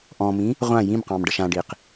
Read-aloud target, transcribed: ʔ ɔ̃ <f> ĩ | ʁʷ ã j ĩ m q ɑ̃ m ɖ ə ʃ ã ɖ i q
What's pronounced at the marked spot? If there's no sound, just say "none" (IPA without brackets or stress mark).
m